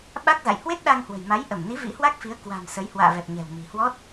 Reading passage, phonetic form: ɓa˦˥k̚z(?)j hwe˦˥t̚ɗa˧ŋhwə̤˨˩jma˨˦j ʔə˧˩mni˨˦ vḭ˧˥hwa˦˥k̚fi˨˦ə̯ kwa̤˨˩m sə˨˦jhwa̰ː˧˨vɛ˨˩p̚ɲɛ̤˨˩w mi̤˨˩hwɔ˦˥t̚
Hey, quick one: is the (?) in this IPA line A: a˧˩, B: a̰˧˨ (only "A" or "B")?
B